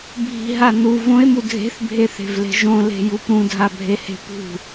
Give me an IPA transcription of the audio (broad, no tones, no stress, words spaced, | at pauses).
bʱi̤ɦa nu võe̯mu dʱe̤θbʱeθe̤vle̤ ʒõle̤jup ɾũdʱabʱehe̤ pṳ